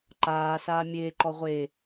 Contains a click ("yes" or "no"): yes